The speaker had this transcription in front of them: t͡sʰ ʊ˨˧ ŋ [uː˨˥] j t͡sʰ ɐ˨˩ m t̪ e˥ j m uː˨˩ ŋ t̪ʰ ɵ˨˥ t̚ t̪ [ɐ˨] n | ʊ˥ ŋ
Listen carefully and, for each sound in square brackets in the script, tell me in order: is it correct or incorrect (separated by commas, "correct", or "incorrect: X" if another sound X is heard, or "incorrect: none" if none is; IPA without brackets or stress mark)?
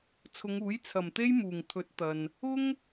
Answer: correct, correct